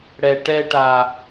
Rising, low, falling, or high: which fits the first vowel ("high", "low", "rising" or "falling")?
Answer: low